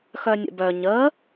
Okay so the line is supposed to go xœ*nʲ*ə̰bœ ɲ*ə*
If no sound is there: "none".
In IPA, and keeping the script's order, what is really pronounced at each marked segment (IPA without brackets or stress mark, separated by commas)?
nʲ, ə